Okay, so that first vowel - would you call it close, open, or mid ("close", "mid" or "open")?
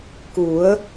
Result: close